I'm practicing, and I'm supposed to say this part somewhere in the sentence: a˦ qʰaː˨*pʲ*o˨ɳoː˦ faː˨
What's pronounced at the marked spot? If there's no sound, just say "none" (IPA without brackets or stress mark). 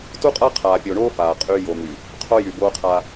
pʲ